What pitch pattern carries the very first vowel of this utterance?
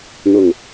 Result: low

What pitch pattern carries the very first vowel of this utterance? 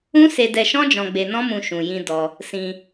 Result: high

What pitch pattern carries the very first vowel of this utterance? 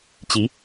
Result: rising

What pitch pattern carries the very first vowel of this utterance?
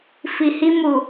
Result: low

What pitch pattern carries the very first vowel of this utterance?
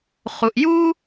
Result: low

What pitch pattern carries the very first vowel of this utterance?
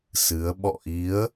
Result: rising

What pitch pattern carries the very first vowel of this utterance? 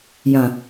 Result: low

